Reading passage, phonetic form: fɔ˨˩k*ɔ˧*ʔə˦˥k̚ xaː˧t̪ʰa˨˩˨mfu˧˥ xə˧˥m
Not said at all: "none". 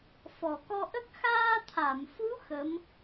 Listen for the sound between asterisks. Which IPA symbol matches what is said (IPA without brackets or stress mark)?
ɔ˧